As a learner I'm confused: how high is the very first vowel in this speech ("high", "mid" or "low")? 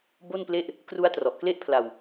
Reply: mid